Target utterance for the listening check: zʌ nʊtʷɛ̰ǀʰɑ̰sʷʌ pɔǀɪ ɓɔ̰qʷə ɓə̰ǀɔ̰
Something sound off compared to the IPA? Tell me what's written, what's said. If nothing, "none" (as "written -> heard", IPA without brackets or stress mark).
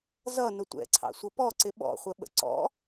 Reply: qʷ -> χʷ